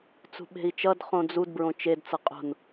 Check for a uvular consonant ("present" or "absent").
present